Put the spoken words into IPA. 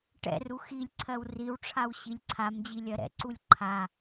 ʈ ɛ̰ r u x i lʲ ǀʰ ɜ w r i w ʈ͡ʂʰ a w ɕ i lʲ ǀʰ a m d͡ʑ i lʲ ɜ ɾ ɛ̰ ǀ u lʲ ǃʰ a

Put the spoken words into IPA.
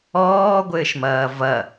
ɔː ɡʷ ɘː ʃ m ɐː v ɐ

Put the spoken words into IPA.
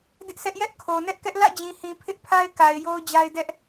d ɪ˦ ʔ s ɛ˦ ʔ j ɛ˦ ʔ kʰ o˨ n ɛ˦ ʔ k ɛ˦ ʔ l ä̰˦˨ d͡ʑ ĩ˨ h ĩ˨ pʰ ɪ˦ ʔ pʰ a˦ ɪ̯ k a˨ ɪ̯ j o˦ ʊ̯ d͡ʑ a˦ ɪ̯ d ɛ˦ ʔ

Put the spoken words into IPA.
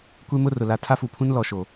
kʷ e˦ m ʊ˦ r ʊ˨ l a˨ tʰ a˦ f u˨ pʰ ũ˦ n l ɔ˨ ʃ o˨

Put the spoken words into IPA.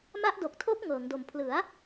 m a˦˥ ʔ d o˨˩ k̚ tʰ o˦˥ k̚ ŋ ɤː˩˦ ŋ d o˨˩ m pʰ l ɯ˩˦ a̯

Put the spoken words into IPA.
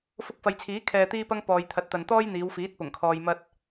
f ʊ˧ k̚ f ɐ˨ j t͡sʰ iː˨˥ kʰ ɛː˧ t̪ iː˥ p ɐ˥ ŋ p ɔː˨ j t̪ʰ ɐ˨˥ t̚ t̪ ɐ˨ n t̪ ɔː˥ j n̪ iː˨˧ w f iː˨˥ t̚ p ʊ˨˩ ŋ kʰ ɔː˨ j m ɐ˧ t̚

